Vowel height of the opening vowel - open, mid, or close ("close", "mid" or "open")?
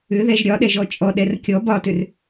close